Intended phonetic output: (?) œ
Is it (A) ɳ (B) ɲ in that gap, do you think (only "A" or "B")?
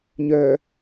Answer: B